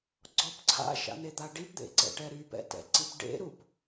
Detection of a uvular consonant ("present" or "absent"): absent